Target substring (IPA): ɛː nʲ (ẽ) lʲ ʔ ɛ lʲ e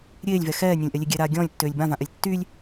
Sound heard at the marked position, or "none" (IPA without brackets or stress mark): ɛ̃